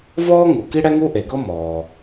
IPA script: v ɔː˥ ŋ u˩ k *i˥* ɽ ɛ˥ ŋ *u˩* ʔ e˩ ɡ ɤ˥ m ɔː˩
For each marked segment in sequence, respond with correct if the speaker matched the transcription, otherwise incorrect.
correct, incorrect

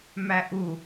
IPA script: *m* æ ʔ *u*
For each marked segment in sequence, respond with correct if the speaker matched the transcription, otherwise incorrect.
correct, correct

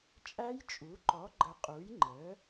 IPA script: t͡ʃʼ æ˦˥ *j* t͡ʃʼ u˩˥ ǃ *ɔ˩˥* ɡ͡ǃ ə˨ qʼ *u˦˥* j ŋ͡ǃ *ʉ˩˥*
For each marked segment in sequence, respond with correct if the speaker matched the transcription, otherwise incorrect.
correct, correct, incorrect, incorrect

